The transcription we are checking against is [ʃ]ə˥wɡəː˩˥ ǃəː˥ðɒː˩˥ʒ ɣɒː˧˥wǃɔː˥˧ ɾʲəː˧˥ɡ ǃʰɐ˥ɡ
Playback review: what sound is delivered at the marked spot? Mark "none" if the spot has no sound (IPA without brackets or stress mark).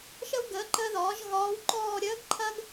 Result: ʃ